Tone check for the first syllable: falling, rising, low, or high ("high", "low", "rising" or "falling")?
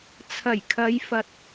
low